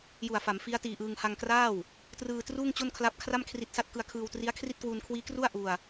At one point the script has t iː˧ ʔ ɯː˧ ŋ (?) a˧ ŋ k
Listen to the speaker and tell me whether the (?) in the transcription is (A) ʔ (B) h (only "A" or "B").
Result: B